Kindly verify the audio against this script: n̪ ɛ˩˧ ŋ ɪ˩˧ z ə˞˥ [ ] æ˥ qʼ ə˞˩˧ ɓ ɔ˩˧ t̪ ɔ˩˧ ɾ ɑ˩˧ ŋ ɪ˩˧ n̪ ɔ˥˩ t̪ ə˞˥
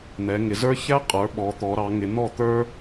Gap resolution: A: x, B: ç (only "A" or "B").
B